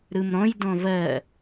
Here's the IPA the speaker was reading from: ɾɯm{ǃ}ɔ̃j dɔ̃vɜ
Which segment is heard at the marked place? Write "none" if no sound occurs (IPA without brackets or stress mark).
ɾ